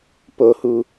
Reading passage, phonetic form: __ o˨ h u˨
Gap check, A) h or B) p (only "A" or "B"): B